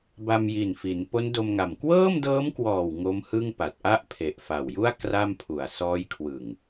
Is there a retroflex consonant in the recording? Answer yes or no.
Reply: no